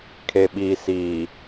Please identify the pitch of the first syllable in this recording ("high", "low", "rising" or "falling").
low